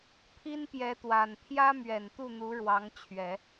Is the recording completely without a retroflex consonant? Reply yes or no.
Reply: no